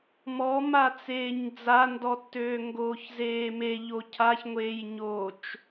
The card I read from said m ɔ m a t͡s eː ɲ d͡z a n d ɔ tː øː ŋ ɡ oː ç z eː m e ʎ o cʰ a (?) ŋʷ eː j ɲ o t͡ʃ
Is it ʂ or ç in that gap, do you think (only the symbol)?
ç